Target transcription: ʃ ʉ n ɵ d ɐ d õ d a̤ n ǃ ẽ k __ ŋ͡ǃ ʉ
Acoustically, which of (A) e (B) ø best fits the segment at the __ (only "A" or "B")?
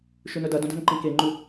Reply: A